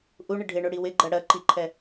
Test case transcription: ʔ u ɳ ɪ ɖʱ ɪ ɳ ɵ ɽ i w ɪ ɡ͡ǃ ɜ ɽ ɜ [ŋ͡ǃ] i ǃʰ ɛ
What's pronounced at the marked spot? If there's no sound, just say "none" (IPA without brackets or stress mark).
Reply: ǃ